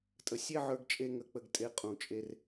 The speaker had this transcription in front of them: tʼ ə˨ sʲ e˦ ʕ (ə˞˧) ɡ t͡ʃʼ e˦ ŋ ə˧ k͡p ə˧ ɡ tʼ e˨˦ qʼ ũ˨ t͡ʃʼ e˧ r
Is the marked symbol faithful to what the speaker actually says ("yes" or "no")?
yes